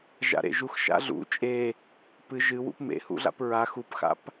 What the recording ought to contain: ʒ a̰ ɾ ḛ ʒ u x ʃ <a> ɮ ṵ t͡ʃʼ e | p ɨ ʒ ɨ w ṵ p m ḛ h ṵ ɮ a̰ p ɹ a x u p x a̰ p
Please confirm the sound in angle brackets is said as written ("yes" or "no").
no